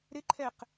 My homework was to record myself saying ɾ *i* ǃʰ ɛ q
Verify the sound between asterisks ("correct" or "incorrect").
incorrect